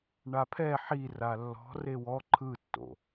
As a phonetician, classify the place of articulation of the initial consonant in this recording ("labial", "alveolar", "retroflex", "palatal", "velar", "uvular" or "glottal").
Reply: retroflex